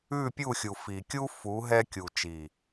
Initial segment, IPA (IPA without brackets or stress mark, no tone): ʉ